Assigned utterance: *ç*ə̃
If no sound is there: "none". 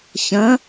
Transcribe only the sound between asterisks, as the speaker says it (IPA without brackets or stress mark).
ç